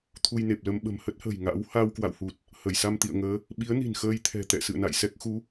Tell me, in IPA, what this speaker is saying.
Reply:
t̪ʰu˧jne˨˩p̚lə˧m ɓə̤˨˩mhə˦˥t̚hə̤ː˨˩j ŋa̰˧˥w ha˧wkwa̰˧˨whu˨˩t̚ | hə˧˩jsa˧mt̪ḭ˧˨ə̯ŋəː˨˦ | ɓi˨˦ə̯ni̤˨˩n xəː˧jt̪ʰɛ̤˨˩t̪ɛ̰˧˨ sɨ̰˧˨ə̯na̰˧˨jsɛ˦˥k̚ xu˨˦

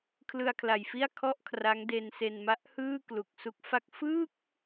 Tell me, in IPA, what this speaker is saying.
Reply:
kʰlɯ˧a̯kʰla˨˩jfi˥˩a̯ kʰɔ˥˩ʔkʰra˦˥ŋde˧n se˧nma˦˥ʔhɯː˥˩ klu˨˩k̚su˦˥k̚fa˥˩k̚ fɯ˥˩k̚

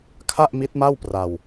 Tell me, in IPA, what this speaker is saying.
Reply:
kʰa˥˩ʔmi˦˥t̚ma˥˩wpra˧w

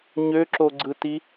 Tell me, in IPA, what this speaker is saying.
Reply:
ɲøǁoɡ͡ǀɯti

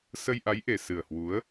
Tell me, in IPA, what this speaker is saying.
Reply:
sə˧jʔa˨˦jʔe˨˩ sɨ˨˩ə̯hwu˨˦ə̯

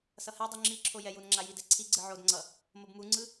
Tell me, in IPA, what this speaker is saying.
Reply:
sʌhɛdˤu ŋ͡ǁiǁʰo jɛjunŋ͡ǁa jidɛǀʰiɡ͡ǀɯ ʕodŋ͡ǀʌ | mobmuŋ͡ǀɯ

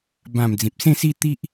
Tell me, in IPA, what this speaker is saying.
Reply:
bã˨˩m d͡zĩ˨p̚sẽ˥˧si˥˧ t̪i˦ʔ

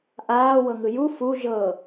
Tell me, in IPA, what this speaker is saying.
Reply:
ʔaːwɤŋɯ ju fu ʒɤ

